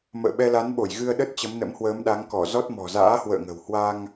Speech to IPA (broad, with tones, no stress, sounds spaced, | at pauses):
m ə̰ː˧˨ ɓ ɛ˧ l a˨˦ n ɓ o˧˩ j ɣ ɨ˧ ə̯ ɗ ə˦˥ t̚ t͡ɕ ə˨˦ m n ə̰˧˥ m h w əː˨˦ m ɗ a˨˦ ŋ k ɔ˧˩ z ɔ˦˥ t̚ m ɔ̤˨˩ z a̰ː˧˥ h w ə̰ː˧˨ ŋ ə̤˨˩ w h w a˧ ŋ